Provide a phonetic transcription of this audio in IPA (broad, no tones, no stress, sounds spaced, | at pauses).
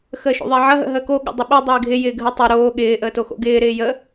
x əː ʃ o̰ ðˤ ɪː ʕ ɐ ɦ ə̰ ɦ əː k o ɠ ə̰ dˤ ə ɓ œ dˤ ɪː ɡʱ ɪ j ɪː ɡʱ ə tˤ œ ɾ oː ɠ ɪː ʔ əː t o x o̰ ɡ ɪː ɾ ɪː j ə